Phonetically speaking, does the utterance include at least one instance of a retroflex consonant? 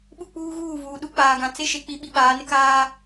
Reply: no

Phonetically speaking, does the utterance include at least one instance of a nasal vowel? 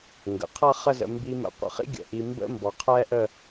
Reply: no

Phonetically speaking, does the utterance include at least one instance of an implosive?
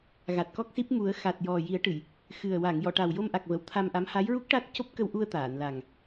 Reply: no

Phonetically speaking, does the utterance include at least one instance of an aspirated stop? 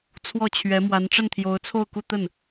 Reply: yes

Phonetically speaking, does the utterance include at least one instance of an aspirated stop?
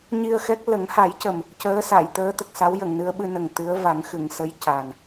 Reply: no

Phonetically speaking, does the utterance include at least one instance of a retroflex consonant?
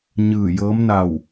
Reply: no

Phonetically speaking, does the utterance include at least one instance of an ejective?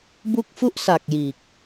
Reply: no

